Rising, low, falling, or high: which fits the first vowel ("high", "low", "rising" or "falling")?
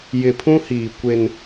low